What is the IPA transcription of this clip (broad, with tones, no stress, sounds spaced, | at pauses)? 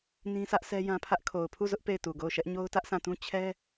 n ĩ˦ s ä˦ ʔ sʰ ɛ˦ j ã˦ pʰ ä˦ ʔ kʰ o˨ ʊ̯ pʰ u˦˨ z ʊ˦ ʔ p e˦˨ ɪ̯ t u˨ ɡ o˦˨ ʊ̯ ʃ ɛ˦ ʔ ɲ o˦ ʊ̯ t ä˦ ʔ sʰ ã˦˨ t ũ˦ t͡ɕʰ ɛ˦